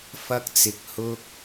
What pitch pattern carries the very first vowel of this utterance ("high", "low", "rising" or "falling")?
high